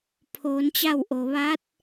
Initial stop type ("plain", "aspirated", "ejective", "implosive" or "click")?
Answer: aspirated